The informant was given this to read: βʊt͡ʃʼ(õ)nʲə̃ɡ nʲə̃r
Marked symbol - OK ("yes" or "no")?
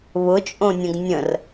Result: yes